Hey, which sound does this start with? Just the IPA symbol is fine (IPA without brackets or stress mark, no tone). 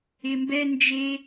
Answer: ɪ